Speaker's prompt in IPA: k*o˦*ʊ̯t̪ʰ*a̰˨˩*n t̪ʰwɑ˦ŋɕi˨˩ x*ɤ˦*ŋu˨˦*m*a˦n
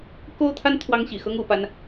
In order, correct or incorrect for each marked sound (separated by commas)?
correct, incorrect, correct, incorrect